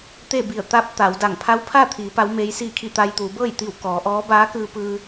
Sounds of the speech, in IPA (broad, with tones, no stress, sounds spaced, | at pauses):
t̪ e˥˨ b i˧˩ ə̯ t̪ a˧˥ p̚ t̪ a˩˧ w d a˧˩ ŋ pʰ a˧˥ w pʰ a˥˨ t̪ʰ iː˩˧ p a˧˥ w m eː˧˥ j s iː˥˨ kʰ i˥˨ t̪ a˧ j t̪ uː˩˧ b ɤː˥˨ j t̪ i˧˩ w k ɔː˩˧ ʔ ɔː˧˥ b aː˧˥ k ɯː˧ p ɯː˧